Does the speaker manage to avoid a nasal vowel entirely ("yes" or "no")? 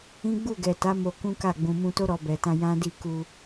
no